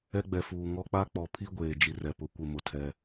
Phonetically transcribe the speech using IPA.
ɛ˦ ɡ͡b ɛ˨ f uː˨ ŋ ɔ˦ k͡p a˦ k͡p ɔ˨ pʰ i˦ ɡʷ eː˨ d͡ʒ i˨ r ɛ˨ p ʊ˨˦ kʷ ɪ˨ m ʊ˨ tʰ ɛ˦

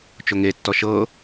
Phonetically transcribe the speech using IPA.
t͡ʃ o ŋ e tː ɔ ʃ ɤ

